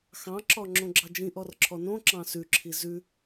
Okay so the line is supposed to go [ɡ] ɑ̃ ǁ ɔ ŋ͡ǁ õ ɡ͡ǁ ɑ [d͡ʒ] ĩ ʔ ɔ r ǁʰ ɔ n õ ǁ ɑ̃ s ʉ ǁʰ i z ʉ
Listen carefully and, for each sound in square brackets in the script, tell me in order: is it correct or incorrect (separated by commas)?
incorrect, correct